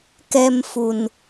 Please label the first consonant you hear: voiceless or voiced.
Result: voiceless